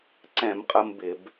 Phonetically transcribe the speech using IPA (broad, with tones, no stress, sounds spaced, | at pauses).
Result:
ǀ ɛ̃˧˩˧ m qʼ ə˧ m b ɪ˧˩˧ b